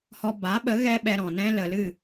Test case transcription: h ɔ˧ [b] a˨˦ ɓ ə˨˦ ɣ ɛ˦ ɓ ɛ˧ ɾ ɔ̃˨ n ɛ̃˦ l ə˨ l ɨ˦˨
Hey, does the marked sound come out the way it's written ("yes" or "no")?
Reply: yes